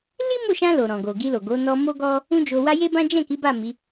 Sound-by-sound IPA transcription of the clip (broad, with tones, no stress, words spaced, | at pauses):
li˦mo˦˨ʃã˧ lo˨ ɾɔ̃˨ɡo˨ɡi˧lo˨ ɡo˨˦ nɔ˧ mo˦ɡɔ˦ | ũ˦d͡ʒo˧wa˦ je˦bã˦ d͡ʒɛ̃˦˨ki˨˦ ba˦˨ mi˨˦